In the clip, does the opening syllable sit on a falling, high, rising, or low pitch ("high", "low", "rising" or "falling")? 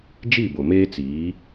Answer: falling